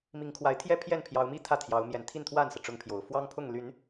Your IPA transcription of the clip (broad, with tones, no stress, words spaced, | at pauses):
mi˨˦ŋkʰwa˨˦ɪ̯t̪ʰjɛ˦ pʰjɛ˥˨npʰjɑ˨˦ʊ̯mi˥˨ t̪ʰä˥˨t̪ʰjɑ˨˦ʊ̯ mjɛ˨˩nt̪ʰi˥˨nt̪ʰwa˥˨nsɤ˩ ʈ͡ʂʊ˦ŋpʰjo˨˩ʊ̯ fwɑ˦ŋpʰʊ˥˨ŋly˨˦n